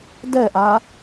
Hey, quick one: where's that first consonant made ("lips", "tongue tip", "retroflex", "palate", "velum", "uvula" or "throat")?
tongue tip